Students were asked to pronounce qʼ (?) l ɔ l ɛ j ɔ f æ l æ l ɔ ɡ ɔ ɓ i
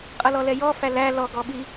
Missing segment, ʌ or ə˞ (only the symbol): ʌ